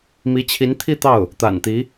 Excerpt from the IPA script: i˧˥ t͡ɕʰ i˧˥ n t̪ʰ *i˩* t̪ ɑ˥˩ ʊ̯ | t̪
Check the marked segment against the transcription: incorrect: i˥˧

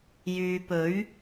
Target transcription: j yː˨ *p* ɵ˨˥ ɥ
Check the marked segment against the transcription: correct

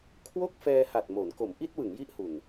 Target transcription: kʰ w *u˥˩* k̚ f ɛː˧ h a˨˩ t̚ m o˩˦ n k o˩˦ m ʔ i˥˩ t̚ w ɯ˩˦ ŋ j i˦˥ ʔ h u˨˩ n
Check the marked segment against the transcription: incorrect: o˥˩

